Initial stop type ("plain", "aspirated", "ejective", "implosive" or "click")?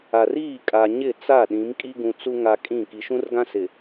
ejective